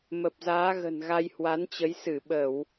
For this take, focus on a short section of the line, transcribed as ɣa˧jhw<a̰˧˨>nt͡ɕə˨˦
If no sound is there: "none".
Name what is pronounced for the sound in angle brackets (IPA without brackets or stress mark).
a˨˦